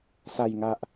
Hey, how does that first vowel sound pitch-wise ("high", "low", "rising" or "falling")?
low